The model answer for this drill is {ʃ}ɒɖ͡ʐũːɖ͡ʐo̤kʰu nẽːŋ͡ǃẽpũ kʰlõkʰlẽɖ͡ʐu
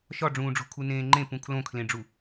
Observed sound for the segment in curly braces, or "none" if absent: ʃ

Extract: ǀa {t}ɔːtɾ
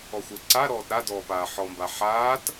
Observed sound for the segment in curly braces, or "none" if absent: ɾ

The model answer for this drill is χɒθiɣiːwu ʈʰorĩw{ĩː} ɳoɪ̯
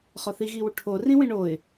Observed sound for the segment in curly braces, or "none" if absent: ĩ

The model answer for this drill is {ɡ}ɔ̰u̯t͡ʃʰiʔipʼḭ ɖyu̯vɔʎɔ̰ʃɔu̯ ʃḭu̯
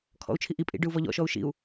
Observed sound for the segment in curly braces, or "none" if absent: kʰ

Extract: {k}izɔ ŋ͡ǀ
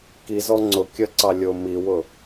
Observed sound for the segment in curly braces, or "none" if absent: k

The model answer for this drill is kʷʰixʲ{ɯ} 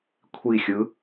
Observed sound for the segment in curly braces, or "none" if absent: ɯ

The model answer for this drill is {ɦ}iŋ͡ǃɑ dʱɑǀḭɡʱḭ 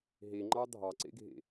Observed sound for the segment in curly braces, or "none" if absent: ɦ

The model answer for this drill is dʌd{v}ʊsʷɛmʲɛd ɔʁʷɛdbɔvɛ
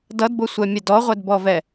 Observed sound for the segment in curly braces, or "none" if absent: b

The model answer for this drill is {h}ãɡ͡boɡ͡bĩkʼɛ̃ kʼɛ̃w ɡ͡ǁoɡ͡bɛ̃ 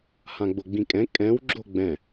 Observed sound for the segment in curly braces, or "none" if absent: h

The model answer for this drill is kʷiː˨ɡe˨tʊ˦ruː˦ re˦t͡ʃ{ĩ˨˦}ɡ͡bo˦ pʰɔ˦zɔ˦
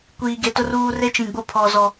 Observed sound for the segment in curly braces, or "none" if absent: ĩ˨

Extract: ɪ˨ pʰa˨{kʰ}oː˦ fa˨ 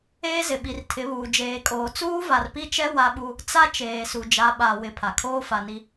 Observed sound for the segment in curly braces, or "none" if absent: kʰ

